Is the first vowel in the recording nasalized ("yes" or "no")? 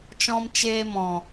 yes